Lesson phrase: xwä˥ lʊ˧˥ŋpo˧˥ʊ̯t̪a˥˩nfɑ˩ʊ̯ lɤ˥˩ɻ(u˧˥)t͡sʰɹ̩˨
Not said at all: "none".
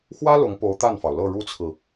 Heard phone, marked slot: u˥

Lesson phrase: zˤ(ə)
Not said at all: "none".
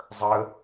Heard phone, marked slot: ə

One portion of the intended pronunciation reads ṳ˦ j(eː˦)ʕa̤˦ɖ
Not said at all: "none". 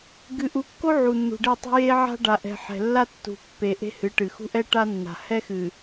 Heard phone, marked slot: e˦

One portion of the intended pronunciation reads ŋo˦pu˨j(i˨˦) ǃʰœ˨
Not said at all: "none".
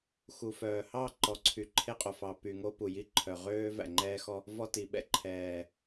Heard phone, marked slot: i˦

